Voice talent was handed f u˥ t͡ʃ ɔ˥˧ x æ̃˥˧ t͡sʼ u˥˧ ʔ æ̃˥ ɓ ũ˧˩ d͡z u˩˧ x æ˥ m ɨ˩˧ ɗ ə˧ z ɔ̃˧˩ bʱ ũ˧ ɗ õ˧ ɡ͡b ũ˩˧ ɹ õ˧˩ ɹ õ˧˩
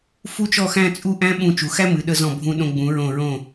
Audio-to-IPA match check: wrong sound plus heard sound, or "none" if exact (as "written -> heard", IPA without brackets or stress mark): d͡z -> t͡ʃ